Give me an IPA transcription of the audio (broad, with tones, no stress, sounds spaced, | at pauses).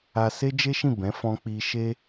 a˧ s e˦ d͡ʒ e˦ ʃ ĩ˦˨ b ɛ̃˨˦ f ɔ̃˧ k͡p i˧ ʃ e˦